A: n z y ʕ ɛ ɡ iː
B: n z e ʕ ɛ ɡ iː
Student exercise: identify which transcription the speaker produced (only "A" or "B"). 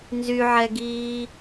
A